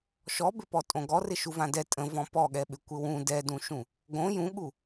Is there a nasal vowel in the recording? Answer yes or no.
yes